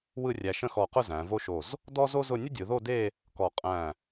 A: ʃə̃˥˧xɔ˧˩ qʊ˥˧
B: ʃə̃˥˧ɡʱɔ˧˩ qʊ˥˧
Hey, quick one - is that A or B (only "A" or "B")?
A